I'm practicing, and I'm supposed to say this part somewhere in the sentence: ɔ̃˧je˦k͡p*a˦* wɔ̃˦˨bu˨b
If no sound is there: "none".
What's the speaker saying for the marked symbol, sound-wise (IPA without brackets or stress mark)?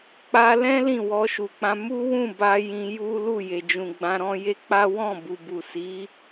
a˦